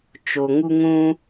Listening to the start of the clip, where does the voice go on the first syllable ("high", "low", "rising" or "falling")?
low